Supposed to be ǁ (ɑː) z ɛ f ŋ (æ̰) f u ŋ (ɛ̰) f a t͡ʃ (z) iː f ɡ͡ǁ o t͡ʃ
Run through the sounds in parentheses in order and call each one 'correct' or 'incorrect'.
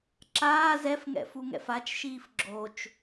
incorrect: aː, incorrect: ɛ̰, correct, incorrect: ʃ

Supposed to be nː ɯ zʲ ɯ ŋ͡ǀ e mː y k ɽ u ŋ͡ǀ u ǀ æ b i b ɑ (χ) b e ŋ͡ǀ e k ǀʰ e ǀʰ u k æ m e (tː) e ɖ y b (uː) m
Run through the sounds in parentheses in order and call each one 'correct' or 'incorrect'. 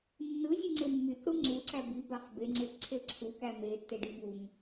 correct, correct, incorrect: u

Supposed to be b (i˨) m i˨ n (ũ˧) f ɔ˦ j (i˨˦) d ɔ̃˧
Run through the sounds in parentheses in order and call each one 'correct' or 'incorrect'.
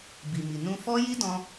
correct, correct, incorrect: i˦

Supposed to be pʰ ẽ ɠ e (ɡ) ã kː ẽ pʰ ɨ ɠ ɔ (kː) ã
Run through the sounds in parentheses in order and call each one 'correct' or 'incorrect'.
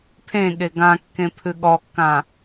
correct, correct

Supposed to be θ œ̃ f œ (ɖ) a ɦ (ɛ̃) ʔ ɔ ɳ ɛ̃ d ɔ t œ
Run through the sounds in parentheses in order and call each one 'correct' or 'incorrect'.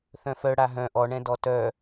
incorrect: ɽ, incorrect: œ̃

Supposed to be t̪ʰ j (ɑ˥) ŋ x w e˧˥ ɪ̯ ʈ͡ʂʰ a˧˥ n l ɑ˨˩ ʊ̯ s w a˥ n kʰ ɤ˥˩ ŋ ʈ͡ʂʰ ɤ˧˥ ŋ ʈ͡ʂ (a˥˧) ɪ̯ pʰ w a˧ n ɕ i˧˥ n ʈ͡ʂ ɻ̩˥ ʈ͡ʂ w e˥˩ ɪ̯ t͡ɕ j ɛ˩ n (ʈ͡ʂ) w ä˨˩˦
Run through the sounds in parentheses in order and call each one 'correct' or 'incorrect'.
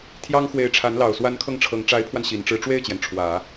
correct, incorrect: a˧˥, incorrect: ʈ͡ʂʰ

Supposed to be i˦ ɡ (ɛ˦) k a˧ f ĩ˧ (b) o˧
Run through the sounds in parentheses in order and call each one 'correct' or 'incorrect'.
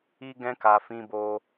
incorrect: ɛ̃˦, correct

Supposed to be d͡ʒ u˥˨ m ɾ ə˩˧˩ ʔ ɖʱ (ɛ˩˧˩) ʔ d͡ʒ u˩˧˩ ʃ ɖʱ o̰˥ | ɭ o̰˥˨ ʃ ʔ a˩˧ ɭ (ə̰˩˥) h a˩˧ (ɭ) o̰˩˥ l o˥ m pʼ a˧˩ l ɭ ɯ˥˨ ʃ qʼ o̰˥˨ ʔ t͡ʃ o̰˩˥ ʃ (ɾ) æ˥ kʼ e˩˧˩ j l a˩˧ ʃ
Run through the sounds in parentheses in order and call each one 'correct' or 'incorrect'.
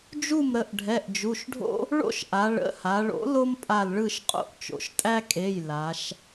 correct, incorrect: ə̰˩˧˩, correct, incorrect: tʼ

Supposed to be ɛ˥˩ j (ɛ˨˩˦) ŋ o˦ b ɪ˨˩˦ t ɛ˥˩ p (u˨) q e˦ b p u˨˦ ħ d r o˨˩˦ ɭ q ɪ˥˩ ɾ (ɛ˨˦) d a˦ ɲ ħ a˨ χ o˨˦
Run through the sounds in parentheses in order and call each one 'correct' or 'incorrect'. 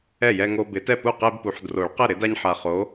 incorrect: ɛ˦, incorrect: u˥˩, incorrect: ɪ˨˦

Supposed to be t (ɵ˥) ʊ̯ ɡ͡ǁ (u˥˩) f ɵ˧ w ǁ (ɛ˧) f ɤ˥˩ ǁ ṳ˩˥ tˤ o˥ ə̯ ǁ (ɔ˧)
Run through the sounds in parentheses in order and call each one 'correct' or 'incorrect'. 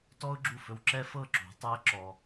incorrect: ɔ˥, correct, incorrect: ɛ˥, correct

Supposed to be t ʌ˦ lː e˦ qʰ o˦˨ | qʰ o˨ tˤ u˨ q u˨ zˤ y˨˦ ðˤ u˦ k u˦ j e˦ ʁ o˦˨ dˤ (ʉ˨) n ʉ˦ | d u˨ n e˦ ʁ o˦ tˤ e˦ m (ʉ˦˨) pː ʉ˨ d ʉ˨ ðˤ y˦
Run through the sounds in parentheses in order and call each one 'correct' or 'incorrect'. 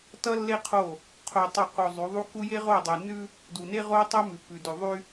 correct, incorrect: ʉ˨

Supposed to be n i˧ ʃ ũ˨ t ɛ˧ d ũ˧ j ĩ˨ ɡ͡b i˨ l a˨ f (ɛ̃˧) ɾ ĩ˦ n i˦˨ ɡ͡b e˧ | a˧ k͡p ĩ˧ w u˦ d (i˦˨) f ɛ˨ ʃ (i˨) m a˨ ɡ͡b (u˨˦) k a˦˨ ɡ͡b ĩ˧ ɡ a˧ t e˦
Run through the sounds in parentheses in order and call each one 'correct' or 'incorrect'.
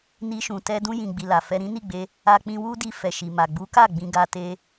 incorrect: ɛ˧, incorrect: i˧, correct, correct

